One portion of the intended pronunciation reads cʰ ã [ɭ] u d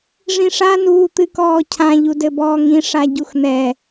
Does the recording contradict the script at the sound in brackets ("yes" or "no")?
yes